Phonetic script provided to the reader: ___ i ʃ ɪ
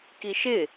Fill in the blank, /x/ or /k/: k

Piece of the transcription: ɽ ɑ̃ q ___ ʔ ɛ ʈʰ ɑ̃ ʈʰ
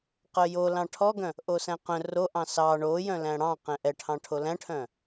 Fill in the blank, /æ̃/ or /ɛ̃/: ɛ̃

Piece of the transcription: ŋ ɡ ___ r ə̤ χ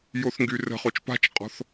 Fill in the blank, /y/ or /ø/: y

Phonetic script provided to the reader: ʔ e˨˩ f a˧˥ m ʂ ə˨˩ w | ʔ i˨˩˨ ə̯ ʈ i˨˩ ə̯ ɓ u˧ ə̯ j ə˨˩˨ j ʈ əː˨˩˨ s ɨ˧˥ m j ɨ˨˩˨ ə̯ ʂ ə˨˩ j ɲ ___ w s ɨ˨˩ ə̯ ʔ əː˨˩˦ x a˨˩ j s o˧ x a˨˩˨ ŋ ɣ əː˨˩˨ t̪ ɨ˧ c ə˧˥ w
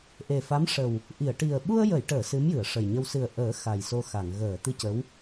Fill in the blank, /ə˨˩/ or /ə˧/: ə˧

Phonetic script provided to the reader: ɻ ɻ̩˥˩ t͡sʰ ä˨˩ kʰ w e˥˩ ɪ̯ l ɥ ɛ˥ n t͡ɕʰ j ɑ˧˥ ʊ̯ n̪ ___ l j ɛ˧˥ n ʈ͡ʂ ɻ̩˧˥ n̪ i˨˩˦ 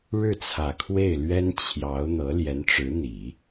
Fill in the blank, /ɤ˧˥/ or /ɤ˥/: ɤ˧˥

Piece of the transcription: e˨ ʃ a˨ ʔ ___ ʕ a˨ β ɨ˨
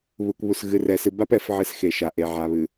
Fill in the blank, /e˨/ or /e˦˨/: e˨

